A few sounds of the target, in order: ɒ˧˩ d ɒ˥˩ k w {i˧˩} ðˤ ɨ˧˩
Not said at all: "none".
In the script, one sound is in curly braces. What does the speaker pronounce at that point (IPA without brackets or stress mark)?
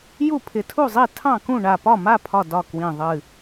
ĩ˧˩